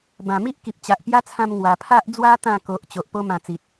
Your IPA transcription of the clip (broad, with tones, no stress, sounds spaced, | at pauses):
b ã˨˩ m i˦ ʔ k i˨ p̚ t͡ɕ a˨ ʔ p j a˦ t͡sʰ ã˧ m ŋ w a˨˩ pʰ a˦ ʔ d͡z w a˦ t̪ ã˥˧ k o˨ ʔ t͡ɕ o˨ ʔ p o˦ m ã˧ t͡s i˨ t̚